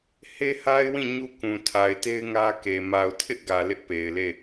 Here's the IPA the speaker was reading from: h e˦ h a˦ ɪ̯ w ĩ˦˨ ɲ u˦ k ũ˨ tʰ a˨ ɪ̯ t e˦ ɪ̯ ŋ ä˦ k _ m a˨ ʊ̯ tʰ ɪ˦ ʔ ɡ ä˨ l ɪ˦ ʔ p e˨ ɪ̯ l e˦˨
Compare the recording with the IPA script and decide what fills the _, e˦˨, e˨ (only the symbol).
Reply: e˨